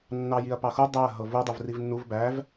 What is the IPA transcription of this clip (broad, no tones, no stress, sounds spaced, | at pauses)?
nː ɑ j i ɐ̯ p ɑ x u dˤ æ ɐ̯ ɦ ɤ v u dˤ u v r i v nː u v b æ v